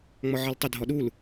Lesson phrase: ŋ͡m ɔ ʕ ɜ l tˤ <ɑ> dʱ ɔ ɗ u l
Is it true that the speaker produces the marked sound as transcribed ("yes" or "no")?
no